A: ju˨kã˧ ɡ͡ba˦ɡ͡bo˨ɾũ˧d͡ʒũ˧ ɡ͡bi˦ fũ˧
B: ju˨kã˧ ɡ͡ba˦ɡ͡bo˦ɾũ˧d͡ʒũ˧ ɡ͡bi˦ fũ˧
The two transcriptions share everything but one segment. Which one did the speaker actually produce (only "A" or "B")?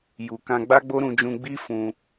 B